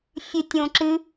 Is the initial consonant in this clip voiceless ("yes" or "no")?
yes